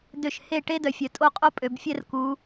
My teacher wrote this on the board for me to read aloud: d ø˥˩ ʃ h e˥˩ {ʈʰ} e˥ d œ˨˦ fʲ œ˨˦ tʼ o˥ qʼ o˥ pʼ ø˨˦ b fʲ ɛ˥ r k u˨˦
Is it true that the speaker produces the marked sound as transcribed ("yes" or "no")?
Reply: no